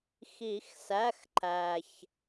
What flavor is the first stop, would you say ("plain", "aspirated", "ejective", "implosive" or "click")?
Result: click